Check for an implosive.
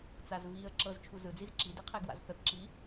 absent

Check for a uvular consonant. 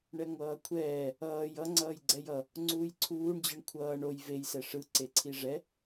absent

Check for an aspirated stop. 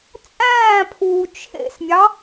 present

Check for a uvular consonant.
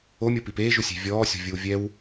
absent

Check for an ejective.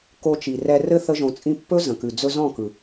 present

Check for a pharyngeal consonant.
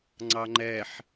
present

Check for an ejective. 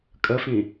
present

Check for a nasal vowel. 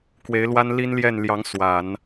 absent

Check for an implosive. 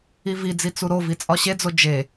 absent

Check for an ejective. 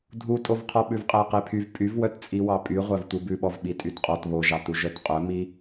present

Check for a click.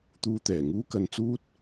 absent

